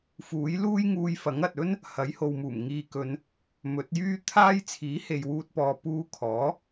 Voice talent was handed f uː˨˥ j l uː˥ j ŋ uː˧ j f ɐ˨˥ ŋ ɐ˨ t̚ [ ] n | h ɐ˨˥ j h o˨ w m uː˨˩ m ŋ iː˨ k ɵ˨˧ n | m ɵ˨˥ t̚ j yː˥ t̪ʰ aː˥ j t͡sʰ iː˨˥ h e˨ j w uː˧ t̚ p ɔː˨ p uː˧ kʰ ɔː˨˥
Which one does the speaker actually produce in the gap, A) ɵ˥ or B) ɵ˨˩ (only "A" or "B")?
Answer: A